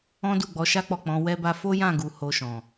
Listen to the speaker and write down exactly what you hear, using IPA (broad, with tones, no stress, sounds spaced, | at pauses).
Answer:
ɔ̃˦ d u˦˨ ɡ͡b ɔ˨˦ ʃ a˦ k͡p ɔ˦˨ k͡p ɔ̃˨˦ w ɛ˦ b a˦ f o˦ j ã˦˨ ɡ u˨ h o˧ ʃ ɔ̃˨